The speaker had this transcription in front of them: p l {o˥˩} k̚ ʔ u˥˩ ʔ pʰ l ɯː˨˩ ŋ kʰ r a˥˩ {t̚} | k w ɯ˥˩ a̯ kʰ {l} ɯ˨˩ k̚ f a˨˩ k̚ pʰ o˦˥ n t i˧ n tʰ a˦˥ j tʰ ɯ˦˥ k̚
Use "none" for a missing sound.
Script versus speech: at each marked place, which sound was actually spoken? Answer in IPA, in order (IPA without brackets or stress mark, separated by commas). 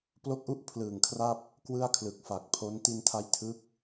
o˥˩, p̚, l